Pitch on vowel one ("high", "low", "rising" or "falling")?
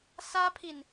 high